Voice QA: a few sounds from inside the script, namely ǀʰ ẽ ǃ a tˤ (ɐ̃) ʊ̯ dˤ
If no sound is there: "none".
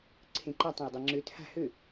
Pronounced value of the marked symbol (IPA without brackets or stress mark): ɐ̃